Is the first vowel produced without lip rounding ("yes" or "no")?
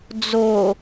no